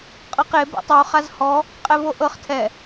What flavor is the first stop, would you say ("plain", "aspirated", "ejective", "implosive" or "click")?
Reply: ejective